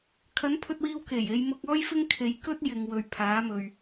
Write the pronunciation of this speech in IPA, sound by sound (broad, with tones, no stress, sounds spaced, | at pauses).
kʰ ɐ˨˥ n pʰ ɵ˧ t̚ w iː˧ w k e˨˩ j e˨˧ j m ʊ˧ k̚ ɔː˥ j f ɪ˥ ŋ kʰ e˨ j k ɵ˥ t̚ j ɪ˨ ŋ w ɵ˨ ɥ pʰ aː˨˥ m ɵ˨ ɥ